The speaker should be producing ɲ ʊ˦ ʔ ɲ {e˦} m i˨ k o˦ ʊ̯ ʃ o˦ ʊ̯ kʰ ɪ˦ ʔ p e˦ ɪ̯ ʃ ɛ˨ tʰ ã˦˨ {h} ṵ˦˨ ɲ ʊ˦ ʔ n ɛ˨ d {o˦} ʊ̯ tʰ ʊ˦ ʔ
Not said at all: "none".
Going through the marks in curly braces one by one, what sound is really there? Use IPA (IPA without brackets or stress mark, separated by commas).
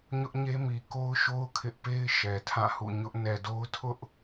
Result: e˦, h, o˦